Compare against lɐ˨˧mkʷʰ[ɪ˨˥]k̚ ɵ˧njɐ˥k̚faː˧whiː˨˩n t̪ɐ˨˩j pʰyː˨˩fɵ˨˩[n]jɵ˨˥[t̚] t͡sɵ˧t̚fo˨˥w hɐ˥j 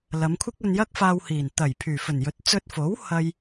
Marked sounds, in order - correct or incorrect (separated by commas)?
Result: incorrect, correct, correct